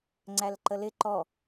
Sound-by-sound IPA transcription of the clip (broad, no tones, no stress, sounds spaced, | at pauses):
ŋ͡ǀ æ l ǃ ə l ɪ ǃ ɔ